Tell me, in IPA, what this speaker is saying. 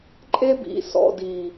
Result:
ǃʼ e˦ b ḭ˨˦ s ɔ̰˨ d i˨

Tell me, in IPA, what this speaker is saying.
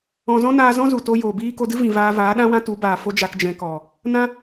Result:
ɔ̃˨ z ɔ̃˦ n aː˧ z ɔ̃˦ z u˨ t o˧ j oː˨ b iː˦ k o˧ d ɨ˦ v ĩ˨ v aː˧ v aː˨˦ ɗ ã˦ w ã˦ t u˨˦ b aː˨ f o˦ d͡ʒ a˧ k d͡ʒ ɛ̃˧ k ɔ˨ | n ã˦

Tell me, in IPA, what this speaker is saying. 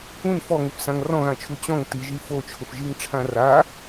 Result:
ũ n f ɔ ŋ ʊ f s ã ŋ r ɔ̃ ɣ ã t͡ʃʰ u t͡ɕ ɔ̃ ŋ t i ʒ i f o t͡ʃʰ ʊ f ʒ i ŋ ʈ͡ʂʰ ã r a

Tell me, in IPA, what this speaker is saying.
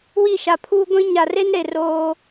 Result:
w i˦˨ ʃ a˨ pʰ uː˦ ɡʷ ĩ˦ ɲ a˨ r e˦ n ɾ e˨ r oː˦

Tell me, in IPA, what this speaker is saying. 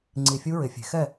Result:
ŋ͡ǀ i˧˩ fʲ u˦˥ ɹ ɪ˨˩˦ fʲ e̤˨˩˦ x ɛ˥˨

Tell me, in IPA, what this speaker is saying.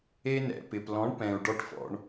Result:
e˧ n ɛ̰˨ p ɪ˨ p l ɔ̃˨˦ ɳ p ɛ̃˧ u̯ ɖ ɔ˧ ʈ f ɔ̰˧ ɳ

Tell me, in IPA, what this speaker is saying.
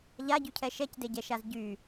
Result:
ʎ a ɟ y cʰ ɛ ʃ ɛ c d e ɟ ɛ ʃ a z ɟ y

